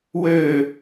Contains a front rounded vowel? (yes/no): yes